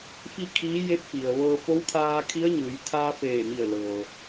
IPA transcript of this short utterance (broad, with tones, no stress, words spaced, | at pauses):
fi˥˨kʰiː˧˥ je˧˥p̚fi˩ə̯ʋɤː˧ fo˧˥wkʰaː˧ kʰi˧˥ə̯ɲɯː˩˧j t̪ʰaː˧feː˧˩mi˧˩ə̯ lɤː˩